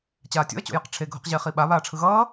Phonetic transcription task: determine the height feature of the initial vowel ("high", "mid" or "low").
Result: low